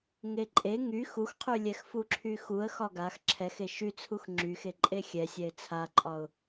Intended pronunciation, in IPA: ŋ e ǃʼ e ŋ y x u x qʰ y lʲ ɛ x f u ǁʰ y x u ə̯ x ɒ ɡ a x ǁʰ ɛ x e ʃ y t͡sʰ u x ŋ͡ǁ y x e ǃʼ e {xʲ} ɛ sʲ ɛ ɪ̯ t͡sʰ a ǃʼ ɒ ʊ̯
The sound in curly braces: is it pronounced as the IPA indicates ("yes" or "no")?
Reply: yes